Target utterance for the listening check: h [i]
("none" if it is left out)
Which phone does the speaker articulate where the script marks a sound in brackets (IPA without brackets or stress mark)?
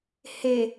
e